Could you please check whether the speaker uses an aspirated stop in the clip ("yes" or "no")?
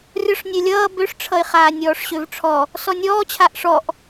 yes